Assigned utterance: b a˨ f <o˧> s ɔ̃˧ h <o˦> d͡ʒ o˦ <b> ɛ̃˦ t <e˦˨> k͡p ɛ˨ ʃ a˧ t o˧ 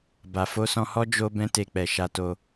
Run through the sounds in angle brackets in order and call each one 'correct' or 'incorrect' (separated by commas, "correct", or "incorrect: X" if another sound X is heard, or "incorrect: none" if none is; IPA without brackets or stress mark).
correct, incorrect: ɔ˦, correct, incorrect: e˧